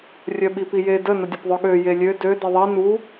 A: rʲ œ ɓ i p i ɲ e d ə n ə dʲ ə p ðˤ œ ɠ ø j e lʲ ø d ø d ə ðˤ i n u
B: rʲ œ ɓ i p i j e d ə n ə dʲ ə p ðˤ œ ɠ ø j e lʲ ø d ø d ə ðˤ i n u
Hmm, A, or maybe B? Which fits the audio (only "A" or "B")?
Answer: B